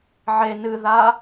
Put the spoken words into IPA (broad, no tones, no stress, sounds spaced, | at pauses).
ʕ e n ɨ ð a